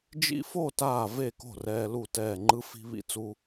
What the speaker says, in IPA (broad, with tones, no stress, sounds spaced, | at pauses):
d͡ʒ ḭ˦ f o˥˨ t aː˥˨ v e˥˨ k o̤˥˨ r ɛː˦ l u˥˨ t ɛː˥˨ ŋ͡ǃ ɯ˦ f i̤˦ β ḭ˦ t͡s u˦